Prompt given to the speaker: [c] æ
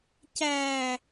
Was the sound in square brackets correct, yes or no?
yes